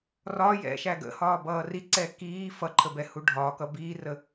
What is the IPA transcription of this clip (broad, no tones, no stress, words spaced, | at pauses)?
rɒ jɛ̰ʃæ ɡə̰hɒːbʌː riǀɛ kiː fʌǃʰəbɛhu ɖʱɒkʌ biːrə